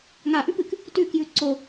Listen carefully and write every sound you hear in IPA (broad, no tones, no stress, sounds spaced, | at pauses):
ŋ a ʔ ʉ p ɨ k | t ʉ k j ʉ ǀ o